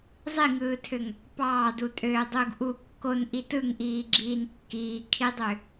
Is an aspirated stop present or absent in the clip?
present